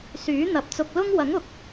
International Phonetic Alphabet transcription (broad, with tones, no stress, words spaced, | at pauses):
syː˨˥n̪ɐ˨˥p̚t͡sʊ˧k̚ lʊ˥ŋ wɐ˨˥ŋʊ˨k̚